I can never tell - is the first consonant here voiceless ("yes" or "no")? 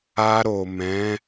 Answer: no